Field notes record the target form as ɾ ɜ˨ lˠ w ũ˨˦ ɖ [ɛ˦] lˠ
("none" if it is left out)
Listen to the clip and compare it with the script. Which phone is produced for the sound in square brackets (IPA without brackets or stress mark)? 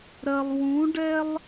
ɛ˦